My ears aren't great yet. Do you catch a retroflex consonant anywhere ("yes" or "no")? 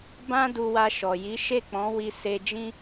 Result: no